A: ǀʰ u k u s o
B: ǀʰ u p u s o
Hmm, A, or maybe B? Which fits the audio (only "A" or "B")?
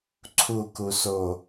A